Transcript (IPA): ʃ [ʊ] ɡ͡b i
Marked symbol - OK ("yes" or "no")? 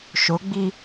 yes